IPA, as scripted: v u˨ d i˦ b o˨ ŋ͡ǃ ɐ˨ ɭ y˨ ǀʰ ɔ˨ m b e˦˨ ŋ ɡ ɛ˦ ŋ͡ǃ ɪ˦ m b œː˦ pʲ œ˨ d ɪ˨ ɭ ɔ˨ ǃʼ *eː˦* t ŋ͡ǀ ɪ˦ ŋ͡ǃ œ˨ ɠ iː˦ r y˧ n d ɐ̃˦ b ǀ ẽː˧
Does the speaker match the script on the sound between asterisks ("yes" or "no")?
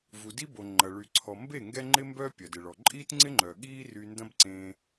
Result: no